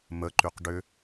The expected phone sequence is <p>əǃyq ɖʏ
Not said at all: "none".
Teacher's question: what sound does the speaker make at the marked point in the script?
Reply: m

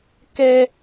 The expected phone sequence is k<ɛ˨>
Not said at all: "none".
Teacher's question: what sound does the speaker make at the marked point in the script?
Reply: ɛ˦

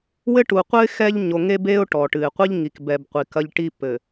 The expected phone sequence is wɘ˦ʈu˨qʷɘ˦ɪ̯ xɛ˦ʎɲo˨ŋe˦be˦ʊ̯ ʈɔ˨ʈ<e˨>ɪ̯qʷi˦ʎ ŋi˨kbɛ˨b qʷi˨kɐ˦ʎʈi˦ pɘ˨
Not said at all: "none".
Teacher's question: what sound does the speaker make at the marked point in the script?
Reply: ɨ˨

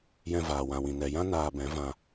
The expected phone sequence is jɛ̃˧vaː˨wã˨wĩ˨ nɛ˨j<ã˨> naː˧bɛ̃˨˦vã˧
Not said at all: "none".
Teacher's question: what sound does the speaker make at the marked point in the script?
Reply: ã˦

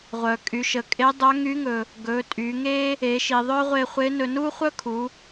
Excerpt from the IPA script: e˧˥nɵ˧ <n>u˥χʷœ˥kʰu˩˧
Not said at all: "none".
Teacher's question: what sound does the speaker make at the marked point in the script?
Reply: n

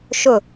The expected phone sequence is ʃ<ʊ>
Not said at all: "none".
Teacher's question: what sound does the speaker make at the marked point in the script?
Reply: ʊ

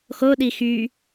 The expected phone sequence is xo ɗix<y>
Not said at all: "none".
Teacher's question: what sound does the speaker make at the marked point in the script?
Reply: y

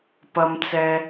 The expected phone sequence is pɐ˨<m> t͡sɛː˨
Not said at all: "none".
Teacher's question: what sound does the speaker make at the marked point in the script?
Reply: m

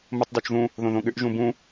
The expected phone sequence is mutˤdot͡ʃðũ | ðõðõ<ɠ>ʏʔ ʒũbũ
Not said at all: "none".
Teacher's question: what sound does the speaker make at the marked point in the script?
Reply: ɠ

